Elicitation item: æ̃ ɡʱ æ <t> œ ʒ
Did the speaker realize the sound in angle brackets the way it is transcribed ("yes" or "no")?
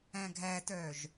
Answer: yes